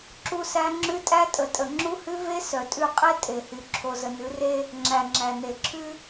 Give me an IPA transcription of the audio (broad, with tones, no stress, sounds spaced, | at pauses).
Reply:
ǁ u˦ s æ˦ ŋ͡ǁ ʉ˦ tʼ æ˦ tʼ ə˨ tʼ ə˨ ŋ͡ǁ u˦ h ʉ˦ v e˦ s œ˨ tʼ ʉ˦˨ qʼ e˦ tʼ e˨ h y˨ ǁʰ o˨ z ə˨ n ʉ˨˦ r e˦ | ŋ͡ǁ æ˨ ŋ͡ǁ æ˨ n e˨ ǁʰ ʉ˦